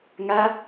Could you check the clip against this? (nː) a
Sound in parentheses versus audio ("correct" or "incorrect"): incorrect